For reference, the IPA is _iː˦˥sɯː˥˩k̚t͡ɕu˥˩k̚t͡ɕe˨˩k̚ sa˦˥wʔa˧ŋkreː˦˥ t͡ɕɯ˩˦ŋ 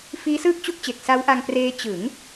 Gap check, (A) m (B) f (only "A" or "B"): B